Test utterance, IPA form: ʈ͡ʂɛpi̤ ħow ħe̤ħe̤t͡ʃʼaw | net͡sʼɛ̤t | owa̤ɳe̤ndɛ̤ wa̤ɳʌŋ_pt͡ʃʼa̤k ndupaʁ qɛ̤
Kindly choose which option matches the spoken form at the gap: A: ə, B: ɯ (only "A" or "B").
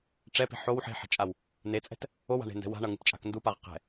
B